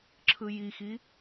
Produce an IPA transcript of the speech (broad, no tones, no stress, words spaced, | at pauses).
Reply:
ǁʰɯjixi